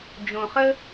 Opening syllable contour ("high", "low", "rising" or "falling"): low